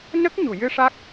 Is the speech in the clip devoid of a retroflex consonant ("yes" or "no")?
no